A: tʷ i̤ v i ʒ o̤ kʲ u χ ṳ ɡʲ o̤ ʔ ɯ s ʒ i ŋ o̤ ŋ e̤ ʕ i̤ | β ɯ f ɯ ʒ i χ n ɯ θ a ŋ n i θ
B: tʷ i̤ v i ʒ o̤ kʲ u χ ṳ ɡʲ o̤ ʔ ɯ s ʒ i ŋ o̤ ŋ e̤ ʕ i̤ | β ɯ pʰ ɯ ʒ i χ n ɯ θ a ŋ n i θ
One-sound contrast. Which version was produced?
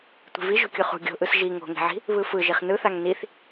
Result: A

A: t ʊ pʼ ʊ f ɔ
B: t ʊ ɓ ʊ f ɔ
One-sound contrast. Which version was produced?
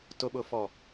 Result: B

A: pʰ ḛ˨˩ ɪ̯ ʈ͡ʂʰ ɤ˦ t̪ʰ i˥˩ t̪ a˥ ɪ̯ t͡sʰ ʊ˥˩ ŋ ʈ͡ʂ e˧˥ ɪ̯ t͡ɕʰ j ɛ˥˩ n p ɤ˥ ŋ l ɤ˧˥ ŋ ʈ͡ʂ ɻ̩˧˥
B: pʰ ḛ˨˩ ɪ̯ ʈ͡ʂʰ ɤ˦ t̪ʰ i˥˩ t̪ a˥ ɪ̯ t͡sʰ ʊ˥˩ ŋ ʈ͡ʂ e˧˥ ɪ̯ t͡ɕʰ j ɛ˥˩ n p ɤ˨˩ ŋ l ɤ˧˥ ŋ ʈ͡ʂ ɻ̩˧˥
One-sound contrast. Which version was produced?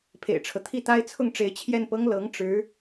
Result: A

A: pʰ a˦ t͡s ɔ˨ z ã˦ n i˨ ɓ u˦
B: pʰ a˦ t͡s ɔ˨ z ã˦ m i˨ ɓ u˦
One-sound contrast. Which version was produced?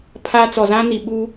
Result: A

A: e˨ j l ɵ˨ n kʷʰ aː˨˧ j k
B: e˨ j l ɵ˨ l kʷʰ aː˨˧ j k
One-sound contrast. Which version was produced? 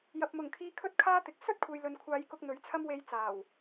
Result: A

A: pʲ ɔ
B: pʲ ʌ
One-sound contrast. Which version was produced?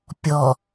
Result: A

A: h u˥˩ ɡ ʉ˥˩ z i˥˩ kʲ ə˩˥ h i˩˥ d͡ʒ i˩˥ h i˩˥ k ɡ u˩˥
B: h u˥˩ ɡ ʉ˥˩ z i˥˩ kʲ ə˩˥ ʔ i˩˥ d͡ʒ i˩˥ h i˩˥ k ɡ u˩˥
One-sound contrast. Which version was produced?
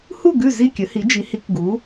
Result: A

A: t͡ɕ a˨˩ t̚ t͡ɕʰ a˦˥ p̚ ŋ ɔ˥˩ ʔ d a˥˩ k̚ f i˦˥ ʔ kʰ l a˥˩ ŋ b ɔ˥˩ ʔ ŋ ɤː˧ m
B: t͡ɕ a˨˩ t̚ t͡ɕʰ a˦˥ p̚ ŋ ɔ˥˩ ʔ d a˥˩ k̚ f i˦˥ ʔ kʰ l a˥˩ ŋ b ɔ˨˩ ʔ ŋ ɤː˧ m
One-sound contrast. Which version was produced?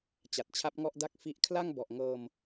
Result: B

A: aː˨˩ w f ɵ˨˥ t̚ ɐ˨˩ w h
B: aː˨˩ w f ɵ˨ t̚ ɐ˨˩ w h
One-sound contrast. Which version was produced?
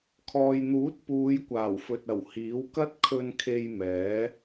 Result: B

